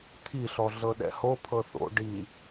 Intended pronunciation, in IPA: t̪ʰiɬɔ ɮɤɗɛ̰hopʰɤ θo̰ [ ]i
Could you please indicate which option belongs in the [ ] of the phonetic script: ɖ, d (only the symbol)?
ɖ